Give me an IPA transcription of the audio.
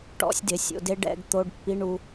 ʈ ɔ̰˦˥ sʲ d ɪ˩˧˩ sʲ o̰˧ d e˦˥ ɖ ɛ̰˧˥˧ ɡ t̪ o˧˥˧ ɖ pː i˧˥˧ ɳ u˧

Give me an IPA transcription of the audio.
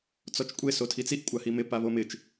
t͡s ɔ t͡ʃ kʷʼ e s o tʰ i t͡s i ʔ kʷʼ a h i m ɪ p a β o m ɪ t͡ʃ

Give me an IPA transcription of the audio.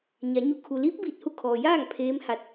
ɲ a˩˧ ɲ u˧˩ kʰ u˩ l iː˧˥ p̚ b iː˧˩ t̚ h u˧˥ kʰ ɔː˩ j aː˥˨ ŋ pʰ eː˧˥ m h a˧˥ t̚

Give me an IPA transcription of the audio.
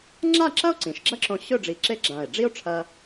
ŋ͡ǁ a˥˧ ǁ ɐ˥ o̯ ǀ ĩ˩˧ ʃ ɡ͡ǁ ɐ˥ ǁ õ˧ ɕ ɵ˥˧ ɖ͡ʐ i˧˩ ǁ e˥ ɡ͡ǁ ã˧˩ e̯ ɖ͡ʐ i˥ o̯ ʈ͡ʂʰ ɐ˧

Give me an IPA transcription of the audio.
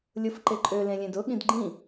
lʲ ʊ f ǃ e ǃʼ ø l ẽ lʲ ẽ d ʊ ɠ ĩ d ɡ͡ǃ ĩ

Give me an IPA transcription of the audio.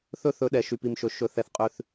θ ɵ˦ θ ɵ˨˦ ɗ ɛ˨ ʃ y˨ p i˨ m ʃ ɵ˨ ʃ ɵ˨ θ ɛ˨ θ qʼ ʉ˨ θ

